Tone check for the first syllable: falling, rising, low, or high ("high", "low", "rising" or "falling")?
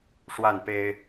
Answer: falling